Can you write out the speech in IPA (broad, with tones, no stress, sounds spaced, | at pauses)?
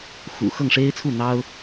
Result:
x ṵ˨˩ x ɤ˥˩ ŋ ʂ e˥ ɪ̯ t͡sʰ u˥˩ n̪ ɑ˥ ʊ̯